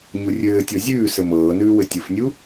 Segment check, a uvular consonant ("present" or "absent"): absent